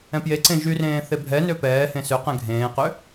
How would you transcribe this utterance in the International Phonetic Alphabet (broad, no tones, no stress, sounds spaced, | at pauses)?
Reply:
ɛ̃ p j e ǀ ẽ ʒ y r ẽː θ e bʱ ɛ n ø p ɛː h ẽ s ø q ɛ̃ ɡʱ ẽː q ø